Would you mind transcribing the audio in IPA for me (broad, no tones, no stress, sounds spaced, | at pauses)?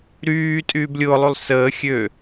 ɾ yː tʼ yː b lʲ ʊː lˠ y lˠ s əː xʲ ø